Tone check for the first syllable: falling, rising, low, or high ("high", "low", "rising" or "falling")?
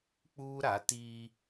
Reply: high